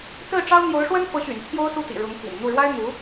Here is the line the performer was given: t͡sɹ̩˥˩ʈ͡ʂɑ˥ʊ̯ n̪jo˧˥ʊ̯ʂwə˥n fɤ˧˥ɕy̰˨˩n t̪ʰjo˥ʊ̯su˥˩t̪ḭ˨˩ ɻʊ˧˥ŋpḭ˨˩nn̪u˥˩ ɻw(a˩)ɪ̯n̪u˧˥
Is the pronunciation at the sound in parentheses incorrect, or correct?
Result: incorrect